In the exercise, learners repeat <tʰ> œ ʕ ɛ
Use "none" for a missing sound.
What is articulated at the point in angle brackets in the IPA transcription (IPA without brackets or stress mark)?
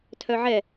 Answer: tʰ